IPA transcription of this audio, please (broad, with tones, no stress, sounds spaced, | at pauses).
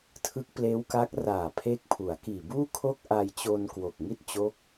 tʰ ɯ˦˥ k̚ p l eː˦˥ w k a˦˥ k̚ r aː˨˩ pʰ eː˦˥ k̚ pʰ u˩˦ a̯ k iː˨˩ b uː˥˩ kʰ o˥˩ k̚ ʔ a˧ j t͡ɕ o˧ n k w o˨˩ k̚ ŋ i˥˩ t̚ t͡ɕ o˦˥ k̚